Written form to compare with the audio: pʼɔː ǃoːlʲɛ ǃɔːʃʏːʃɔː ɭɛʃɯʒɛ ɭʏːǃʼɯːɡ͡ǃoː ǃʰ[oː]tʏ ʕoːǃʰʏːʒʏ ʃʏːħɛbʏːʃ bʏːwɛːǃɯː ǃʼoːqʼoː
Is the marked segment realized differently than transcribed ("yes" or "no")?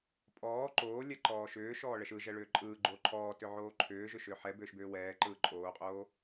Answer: yes